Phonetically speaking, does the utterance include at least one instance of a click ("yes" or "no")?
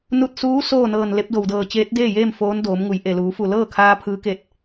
no